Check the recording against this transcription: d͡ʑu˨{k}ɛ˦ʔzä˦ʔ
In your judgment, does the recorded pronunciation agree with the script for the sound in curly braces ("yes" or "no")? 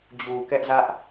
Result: yes